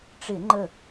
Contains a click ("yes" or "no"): yes